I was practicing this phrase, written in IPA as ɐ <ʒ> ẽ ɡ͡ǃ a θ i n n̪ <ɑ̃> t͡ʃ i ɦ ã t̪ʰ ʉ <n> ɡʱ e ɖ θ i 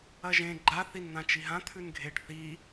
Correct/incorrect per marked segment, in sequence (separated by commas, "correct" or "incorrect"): correct, incorrect, correct